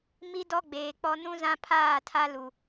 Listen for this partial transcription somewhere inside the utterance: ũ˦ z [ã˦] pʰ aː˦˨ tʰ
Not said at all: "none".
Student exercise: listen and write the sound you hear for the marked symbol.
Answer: ã˦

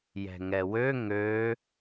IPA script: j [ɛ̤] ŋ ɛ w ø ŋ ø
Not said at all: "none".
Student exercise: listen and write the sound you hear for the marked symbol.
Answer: ɛ̤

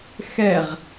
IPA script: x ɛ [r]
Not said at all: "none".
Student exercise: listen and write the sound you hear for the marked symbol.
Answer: ʁ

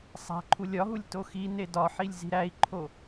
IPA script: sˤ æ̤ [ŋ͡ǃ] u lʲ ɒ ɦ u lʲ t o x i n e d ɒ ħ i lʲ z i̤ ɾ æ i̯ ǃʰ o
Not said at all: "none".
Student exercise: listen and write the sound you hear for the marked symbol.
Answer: ǃʰ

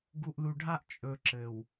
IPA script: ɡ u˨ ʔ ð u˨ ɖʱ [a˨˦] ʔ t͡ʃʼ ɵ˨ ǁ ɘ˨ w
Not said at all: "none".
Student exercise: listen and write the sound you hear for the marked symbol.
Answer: a˦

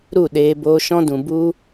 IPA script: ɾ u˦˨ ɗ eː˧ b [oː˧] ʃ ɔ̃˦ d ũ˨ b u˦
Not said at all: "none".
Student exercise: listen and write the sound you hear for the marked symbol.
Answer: oː˧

